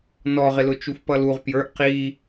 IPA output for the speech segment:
n ɔ ʁ ɪ l ʊ t͡ʃ u f p ʌ l u ʁ p j ə˞ ʔ q i

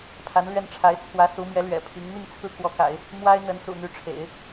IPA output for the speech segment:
pʰ a˧˥ n l ɥ ɛ˥˩ n ʈ͡ʂʰ a˧˥ ɪ̯ t͡sʰ w ä˧˥ s u˧˥ m j ɛ˧˥ l ɥ ɛ̰˨˩ pʰ i˧˥ ŋ n̪ i˥˧ ŋ t͡sʰ ɹ̩˥˩ k w ɔ˧˥ k a̰˨˩˦ ɪ̯ | m w a˥ ɪ̯ n̪ ə˧˥ n s ṵ˨˩ n̪ y˧˥ ʈ͡ʂʰ ḛ˨˩˦ ɪ̯

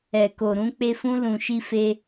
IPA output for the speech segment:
ɛ˨ k o˨ ɾ ũ˧ k͡p e˧ f ũ˧ l ũ˨ ʃ i˧ f e˧

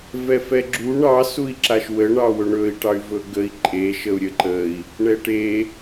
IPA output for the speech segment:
v ɛ f ɛ ɡ͡ǁ u ɳ ɑ s u i̯ ǁ a ʃ w ə ɳ ɑ w ɵ ɳ ɵ i̯ ʈ ɑ y̯ v ɵ ɡ ə i̯ ǃʼ e ʃ ə u̯ ɾʲ ə ǃ ə i̯ | ɳ ɛ ʈ e

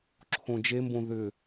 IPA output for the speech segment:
ǁʰ õ d͡ʒ e m b õ ð ʏ

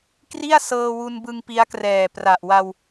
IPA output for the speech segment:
k r i˥˩ a̯ s ɤː˧ w u˧ n b ɯ˧ ŋ p i˦˥ a̯ k r ɛː˨˩ p r a˨˩ ʔ w a˧ w

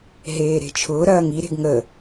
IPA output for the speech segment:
ɦ eː ɾ e̤ t͡ʃʰ ʊː ɾ ɐː ŋ i ɾ e̤ ɡ ŋ ə

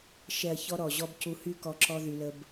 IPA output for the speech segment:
ʃ ɛ˨ ɐ̯ ç ɔ˦ ɾ ɔ˨ ʑ ɔ˦ b c u˧ h y˦ k ɔ˧ ǁ ɔ˦ ð y˧ l ə˦ b

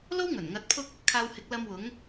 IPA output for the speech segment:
l o˥ w ŋ ɵ˨˩ n ŋ ɐ˨˥ t̚ pʰ ʊ˥ k̚ | kʰ aː˧ w h ɪ˨˥ k̚ l ɐ˧ m w ʊ˨˥ ŋ

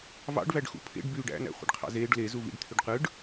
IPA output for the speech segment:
v ɑ̰ ɖ v æ ɖ x ṵ pʰ ḛ ɖ b yː ɖ æ̰ n æ̰ χʷ ḭ ɖ qʰ ɑ̰ z eː ɖ l e z u v ḭ ɖ t̪ʰ y ɖ q ɯ ɖ

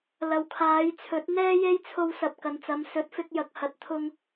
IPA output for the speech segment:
l ɐ˨ w kʰ aː˨˧ j t͡sʰ ɵ˨˥ t̚ n̪ ɛː˥ j e˥ j t͡sʰ o˧ w s ɐ˨ p̚ k ɐ˨ n t͡s ɐ˨˧ m s ɵ˨˥ t̚ f ɪ˧ k̚ j ɐ˨ k̚ h ɐ˨ t̚ t̪ʰ ʊ˧ ŋ

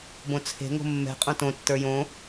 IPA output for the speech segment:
b õ t͡sʰ e̤ ŋ o̤ mː ɛ̤ qʼ õ t õ tː ə˞ j õ

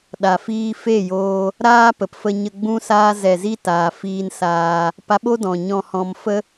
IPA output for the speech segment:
ɗ a˨ f iː˧ f e˦˨ j oː˧ | ɾ aː˦ p ə˨ p f ə˧ ɲ ə˧ ɡ͡b ũ˧ s aː˧ z ɛ˨ z i˧ t aː˨ f iː˧ n s aː˧ | p a˧ ɓ o˦ d ɔ̃˨ ɲ ɔ̃˧ h ɔ̃˧ m f ə˦

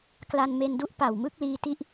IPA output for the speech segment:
k l a˧ n m e˧ n d u˥˩ ʔ p a˨˩ w m ɯ˥˩ k̚ l iː˧ t i˦˥ ʔ

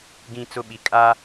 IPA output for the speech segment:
ɡ ĩ˦ t͡s ʊ˦ ɓ i˨ kʼ a˦

